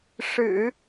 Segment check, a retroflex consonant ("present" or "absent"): present